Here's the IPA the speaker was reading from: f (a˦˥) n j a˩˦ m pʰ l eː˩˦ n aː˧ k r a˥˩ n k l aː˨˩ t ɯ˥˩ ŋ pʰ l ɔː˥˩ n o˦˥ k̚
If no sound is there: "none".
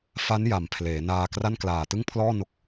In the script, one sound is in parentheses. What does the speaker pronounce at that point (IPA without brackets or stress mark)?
a˦˥